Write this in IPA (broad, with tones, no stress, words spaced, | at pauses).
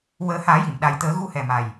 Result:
wəː˨˩˦ haː˨˩˦ji˨˩˨m ɗa˨˩jt̪əː˨˩˦ɣu˧hɛ˨˩ ma˨˩j